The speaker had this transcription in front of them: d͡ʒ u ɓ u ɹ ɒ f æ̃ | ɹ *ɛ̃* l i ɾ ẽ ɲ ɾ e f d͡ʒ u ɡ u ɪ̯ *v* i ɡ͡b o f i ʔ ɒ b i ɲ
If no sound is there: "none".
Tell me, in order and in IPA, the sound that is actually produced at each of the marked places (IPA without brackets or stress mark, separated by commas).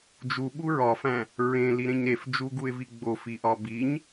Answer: ẽ, v